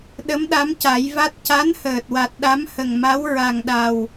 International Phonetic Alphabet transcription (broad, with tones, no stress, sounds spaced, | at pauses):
ɗ ə˧˥ m ɗ a˧˥ m c a˨˩˦ j v a˦˥ t̚ c a˧˥ n h əː˨˩ t̚ w a˨˩ t̚ ɗ a˧˥ m h ə˨˩ ŋ m a˧˥ w ɹ a˨˩ ŋ ɗ a˨˩ w